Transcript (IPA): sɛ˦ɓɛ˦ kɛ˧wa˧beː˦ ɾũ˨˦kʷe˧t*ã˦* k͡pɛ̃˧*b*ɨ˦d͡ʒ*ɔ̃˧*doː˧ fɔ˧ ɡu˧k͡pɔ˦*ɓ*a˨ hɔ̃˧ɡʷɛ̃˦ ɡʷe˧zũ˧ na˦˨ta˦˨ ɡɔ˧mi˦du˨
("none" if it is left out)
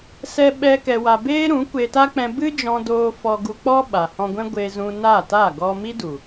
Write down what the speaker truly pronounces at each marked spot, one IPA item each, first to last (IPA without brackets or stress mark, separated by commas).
a˦, b, ɔ̃˧, ɓ